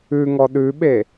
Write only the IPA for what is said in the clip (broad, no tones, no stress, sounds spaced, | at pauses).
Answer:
ʉ ŋ ɔ ɗ ʉ ɓ e